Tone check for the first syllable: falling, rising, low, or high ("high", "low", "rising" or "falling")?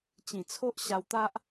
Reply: low